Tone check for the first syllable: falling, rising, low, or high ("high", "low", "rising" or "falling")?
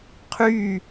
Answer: falling